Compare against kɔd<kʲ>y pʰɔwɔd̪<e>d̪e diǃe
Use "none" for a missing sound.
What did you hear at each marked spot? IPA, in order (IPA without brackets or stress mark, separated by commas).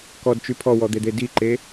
t͡ʃ, e